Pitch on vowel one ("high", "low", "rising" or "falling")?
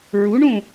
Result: rising